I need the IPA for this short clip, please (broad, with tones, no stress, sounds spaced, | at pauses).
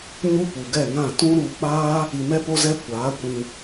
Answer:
ɲ u˦ p u˨ ɡ ɛ˦˨ ŋ ã˦˨ t ũ˦ ɾ u˧ k͡p aː˦ | i˧ m ɛ˦ p o˦ z ɛ˦ kʷ aː˨˦ kʷ ĩ˧